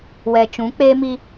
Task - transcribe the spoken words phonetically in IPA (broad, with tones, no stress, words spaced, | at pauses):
wɛ˨t͡ʃũ˨˦k͡pe˦mi˦